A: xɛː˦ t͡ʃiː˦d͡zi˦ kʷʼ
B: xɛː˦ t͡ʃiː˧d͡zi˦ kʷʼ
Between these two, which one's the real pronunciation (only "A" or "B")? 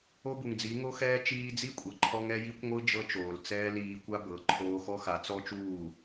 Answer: B